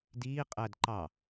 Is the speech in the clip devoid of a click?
no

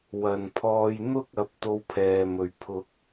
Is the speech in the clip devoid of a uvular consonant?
yes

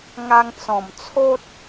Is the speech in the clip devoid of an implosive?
yes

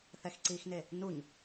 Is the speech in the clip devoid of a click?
no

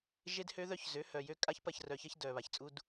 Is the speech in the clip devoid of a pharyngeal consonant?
yes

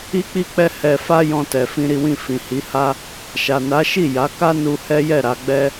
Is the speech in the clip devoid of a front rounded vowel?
yes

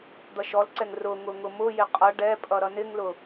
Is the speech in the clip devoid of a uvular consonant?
no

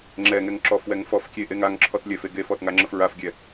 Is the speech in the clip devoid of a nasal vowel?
yes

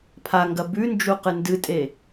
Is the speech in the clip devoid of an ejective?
no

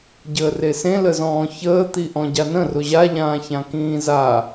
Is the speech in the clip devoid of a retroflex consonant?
yes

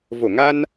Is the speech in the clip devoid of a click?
yes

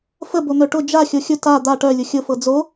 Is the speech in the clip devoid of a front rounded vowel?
no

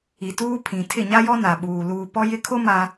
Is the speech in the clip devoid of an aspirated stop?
no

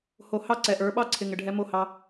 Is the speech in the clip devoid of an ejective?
yes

